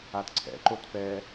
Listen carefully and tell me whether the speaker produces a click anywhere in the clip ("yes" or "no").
yes